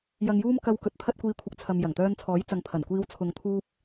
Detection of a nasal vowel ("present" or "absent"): absent